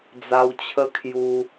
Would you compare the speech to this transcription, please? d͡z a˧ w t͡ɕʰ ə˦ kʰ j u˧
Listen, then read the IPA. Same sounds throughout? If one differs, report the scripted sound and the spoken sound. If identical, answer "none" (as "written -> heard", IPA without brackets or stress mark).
none